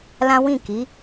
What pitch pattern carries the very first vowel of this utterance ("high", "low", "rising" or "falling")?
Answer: high